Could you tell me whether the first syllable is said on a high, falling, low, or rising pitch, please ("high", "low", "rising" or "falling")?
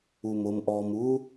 low